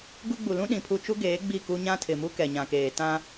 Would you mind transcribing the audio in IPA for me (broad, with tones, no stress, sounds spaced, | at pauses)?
ɡ u˦ ɡ͡b u˨ l ũ˦ ɗ ĩ˨ pʰ u˦˨ t͡ʃ u˦ ɡ eː˨˦ ɡ͡b i˦˨ k u˦ ɲ ã˦ tʰ ɪ˨ m u˦ k ɛ˨ ɲ ã˨ k eː˨ t ã˦